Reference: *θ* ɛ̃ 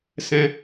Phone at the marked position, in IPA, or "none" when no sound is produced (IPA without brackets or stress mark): s